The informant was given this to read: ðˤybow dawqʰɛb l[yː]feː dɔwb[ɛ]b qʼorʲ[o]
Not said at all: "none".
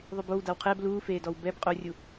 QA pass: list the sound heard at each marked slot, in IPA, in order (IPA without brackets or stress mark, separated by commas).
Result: uː, ɛ, u